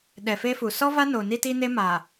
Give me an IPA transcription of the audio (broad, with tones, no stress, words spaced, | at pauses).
ɗɛ˨fe˦fu˨ sɔ˦va˦no˨ ni˦ti˦ne˦ ma˨